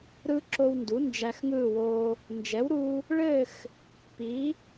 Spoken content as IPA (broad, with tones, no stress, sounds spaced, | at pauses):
ɾ ɯ˧ ǁ o˧ w n d u˩˥ n d͡ʒ æ˧ x ŋ ɯ˥˨ w o˧ | n d͡ʒ ɛ˩˥ w ɾ u˧ | ɭ ɘ˥˨ x | p i˩˥